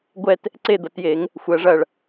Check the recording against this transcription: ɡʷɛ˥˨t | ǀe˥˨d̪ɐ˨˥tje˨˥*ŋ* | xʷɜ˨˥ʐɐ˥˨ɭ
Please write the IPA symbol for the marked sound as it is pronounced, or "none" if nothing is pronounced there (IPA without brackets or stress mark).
ŋ